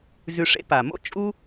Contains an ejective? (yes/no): yes